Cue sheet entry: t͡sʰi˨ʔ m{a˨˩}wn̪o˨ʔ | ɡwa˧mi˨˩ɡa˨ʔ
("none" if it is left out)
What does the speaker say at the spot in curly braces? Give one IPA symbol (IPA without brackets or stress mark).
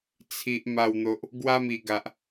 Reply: a˨˩